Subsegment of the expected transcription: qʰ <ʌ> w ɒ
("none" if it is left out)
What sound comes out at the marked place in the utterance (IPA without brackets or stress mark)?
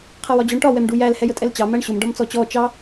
ʌ